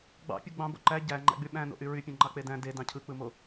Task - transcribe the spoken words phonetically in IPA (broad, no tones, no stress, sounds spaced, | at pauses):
ɡ͡b ɑ̰ pʲ u ɡ͡b ɑ̃ b o̰ ǃ æ ɟ æ ŋ͡ǃ æ̰ ɡ͡b y ɓ æ̃ n o̰ ʔ y ɹ y pʲ ẽ ŋ͡ǃ ɑ k͡p e d æ̃ d e d ɑ̃ cʰ ɯ k͡p ɯ m o